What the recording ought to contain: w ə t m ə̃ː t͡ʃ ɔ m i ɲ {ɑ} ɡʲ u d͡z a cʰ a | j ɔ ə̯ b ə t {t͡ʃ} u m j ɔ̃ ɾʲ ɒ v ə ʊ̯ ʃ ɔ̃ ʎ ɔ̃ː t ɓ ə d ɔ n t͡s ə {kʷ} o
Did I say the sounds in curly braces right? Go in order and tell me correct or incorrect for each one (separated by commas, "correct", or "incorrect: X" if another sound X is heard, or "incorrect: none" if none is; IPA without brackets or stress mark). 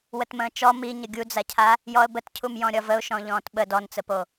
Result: incorrect: ə, incorrect: cʰ, incorrect: p